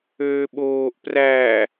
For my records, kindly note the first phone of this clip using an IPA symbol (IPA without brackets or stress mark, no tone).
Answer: øː